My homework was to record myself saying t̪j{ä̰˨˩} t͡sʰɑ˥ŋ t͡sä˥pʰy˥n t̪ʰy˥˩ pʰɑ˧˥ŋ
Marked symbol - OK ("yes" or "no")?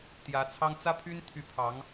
no